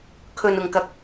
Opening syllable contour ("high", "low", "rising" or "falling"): low